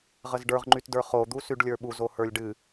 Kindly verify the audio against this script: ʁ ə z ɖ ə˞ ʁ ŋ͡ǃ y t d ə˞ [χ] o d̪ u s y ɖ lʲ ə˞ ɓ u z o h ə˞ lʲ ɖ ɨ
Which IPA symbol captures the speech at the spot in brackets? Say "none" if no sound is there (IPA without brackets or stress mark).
χ